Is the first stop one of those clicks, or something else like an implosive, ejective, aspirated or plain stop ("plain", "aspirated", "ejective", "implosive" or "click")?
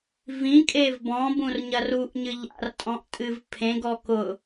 ejective